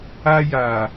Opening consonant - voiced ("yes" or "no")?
yes